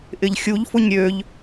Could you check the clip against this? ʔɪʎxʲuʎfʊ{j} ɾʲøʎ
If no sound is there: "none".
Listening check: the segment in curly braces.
ɲ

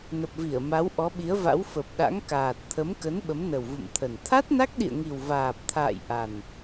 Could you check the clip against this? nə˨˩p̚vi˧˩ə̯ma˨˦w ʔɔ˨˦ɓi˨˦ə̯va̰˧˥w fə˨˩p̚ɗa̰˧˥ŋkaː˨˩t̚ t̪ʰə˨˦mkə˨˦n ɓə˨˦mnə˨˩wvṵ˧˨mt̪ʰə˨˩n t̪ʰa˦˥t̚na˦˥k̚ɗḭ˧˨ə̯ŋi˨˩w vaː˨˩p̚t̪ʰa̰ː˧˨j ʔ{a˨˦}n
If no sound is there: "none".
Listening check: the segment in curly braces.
a˨˩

